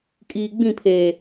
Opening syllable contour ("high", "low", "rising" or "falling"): low